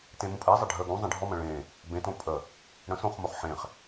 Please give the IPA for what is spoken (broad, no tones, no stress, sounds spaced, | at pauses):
t ẽ m ũ pʼ e zˤ ə ɖʱ ə ɡ ũ zˤ ẽ ɖʱ ɔ m ə̃ ɭ ẽ | b ẽ t õ pʼ ə | ɽ ə̃ s õ χ m o χ ħ ẽ χ